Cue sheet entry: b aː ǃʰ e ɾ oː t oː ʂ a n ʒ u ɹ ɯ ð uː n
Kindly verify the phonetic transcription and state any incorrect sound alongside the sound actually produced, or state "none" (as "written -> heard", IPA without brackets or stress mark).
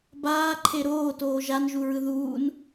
ʂ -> ʒ